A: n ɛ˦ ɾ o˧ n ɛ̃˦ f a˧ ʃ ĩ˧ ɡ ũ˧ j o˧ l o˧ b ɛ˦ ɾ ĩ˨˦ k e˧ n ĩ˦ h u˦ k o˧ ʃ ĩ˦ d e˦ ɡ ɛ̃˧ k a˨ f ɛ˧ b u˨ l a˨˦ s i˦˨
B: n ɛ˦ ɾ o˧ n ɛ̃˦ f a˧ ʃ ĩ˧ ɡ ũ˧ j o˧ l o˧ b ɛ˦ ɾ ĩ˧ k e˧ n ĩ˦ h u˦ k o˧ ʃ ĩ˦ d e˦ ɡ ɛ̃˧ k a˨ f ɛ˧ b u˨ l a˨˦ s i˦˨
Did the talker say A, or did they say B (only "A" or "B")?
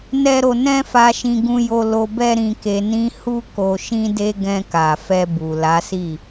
B